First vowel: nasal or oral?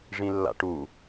nasal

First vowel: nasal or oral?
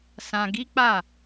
nasal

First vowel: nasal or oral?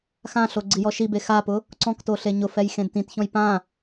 nasal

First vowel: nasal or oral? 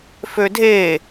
oral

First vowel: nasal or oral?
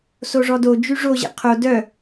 oral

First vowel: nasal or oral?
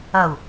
oral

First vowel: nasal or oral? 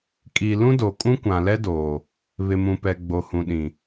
oral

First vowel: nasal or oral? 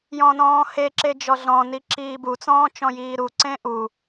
nasal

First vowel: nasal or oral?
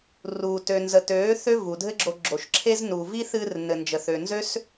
oral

